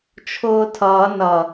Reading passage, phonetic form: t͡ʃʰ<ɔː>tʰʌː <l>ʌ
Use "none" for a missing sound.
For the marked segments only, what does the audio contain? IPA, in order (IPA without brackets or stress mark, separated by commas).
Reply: ʊː, n